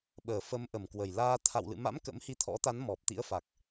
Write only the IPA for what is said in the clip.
ɓəː˨˩ fə˨˦mʔə˨˩mkwə˨˩j laː˧ t̪ʰa̰˧˨wlɨ̰˧˨ma̰˧˥m kə̰˧˥mhi˧t̪ʰɔ̰˧˥t̪a˨˦n mɔ˨˩p̚t̪ḭ˧˥ə̯fa˨˩k̚

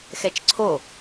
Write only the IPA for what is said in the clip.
xɛt͡ʃǀʰo

